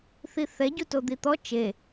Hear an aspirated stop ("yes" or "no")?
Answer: no